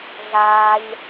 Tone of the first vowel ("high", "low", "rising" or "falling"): high